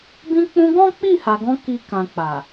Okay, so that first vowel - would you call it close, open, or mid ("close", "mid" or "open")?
close